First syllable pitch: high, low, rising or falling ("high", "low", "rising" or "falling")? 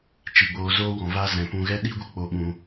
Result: low